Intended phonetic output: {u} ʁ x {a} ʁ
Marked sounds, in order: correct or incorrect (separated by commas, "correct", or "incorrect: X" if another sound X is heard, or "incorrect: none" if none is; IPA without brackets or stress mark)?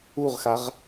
correct, correct